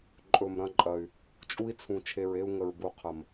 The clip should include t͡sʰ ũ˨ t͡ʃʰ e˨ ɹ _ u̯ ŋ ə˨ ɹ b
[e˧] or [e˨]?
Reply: e˧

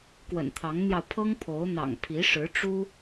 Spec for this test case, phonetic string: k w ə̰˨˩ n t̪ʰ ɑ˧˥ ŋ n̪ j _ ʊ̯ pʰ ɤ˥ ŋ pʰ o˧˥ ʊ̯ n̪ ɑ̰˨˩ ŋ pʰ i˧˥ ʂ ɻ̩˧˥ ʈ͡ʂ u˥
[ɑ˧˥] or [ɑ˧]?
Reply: ɑ˧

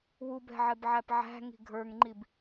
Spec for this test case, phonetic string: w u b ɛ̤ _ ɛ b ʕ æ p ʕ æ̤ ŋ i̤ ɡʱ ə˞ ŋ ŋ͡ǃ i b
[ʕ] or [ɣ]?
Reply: ʕ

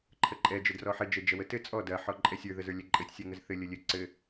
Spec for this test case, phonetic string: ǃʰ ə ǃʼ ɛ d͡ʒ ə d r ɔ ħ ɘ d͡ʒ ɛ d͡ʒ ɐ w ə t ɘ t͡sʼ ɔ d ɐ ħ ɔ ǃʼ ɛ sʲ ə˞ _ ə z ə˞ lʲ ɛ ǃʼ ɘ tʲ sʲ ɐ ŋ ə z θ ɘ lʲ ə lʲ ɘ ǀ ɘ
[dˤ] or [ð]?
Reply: ð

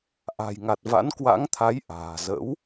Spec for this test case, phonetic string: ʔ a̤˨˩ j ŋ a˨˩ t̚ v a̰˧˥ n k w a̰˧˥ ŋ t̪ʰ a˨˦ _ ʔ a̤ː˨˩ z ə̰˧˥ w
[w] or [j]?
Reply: j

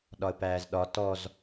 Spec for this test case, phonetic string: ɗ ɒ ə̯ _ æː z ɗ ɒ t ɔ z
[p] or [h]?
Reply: p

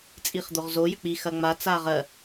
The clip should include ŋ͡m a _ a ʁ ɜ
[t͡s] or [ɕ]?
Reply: t͡s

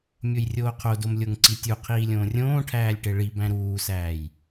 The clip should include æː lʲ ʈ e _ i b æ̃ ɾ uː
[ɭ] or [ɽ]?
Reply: ɭ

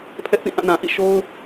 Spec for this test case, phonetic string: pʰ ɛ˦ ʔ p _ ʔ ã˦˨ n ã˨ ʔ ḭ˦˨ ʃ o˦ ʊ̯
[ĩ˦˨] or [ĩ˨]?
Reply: ĩ˦˨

